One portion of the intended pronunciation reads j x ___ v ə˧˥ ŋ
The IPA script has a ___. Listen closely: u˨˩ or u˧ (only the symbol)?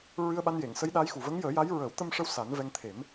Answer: u˨˩